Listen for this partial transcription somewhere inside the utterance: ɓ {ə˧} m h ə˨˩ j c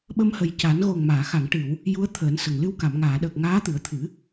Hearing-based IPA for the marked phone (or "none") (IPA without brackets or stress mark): ə˧